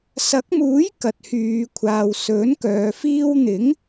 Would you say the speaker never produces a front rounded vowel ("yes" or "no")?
no